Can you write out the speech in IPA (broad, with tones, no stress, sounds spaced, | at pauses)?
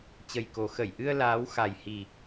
t͡ɕ ə˨˩ j k o˨˩ x ə˧˩ j ʔ ɨ˧ ə̯ l aː˨˦ w x a˨˩ j h i˨˩